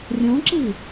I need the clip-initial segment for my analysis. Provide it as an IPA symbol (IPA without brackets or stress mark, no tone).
rʲ